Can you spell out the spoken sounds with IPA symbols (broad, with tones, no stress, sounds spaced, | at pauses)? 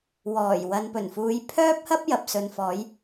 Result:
w ɔː˨˩ j w ɐ˨ n p ɵ˨˩ n f uː˨˧ j pʰ œː˥ p̚ h ɐ˥ p̚ j ɐ˨ p̚ s ɵ˨ n f ɔː˨˧ j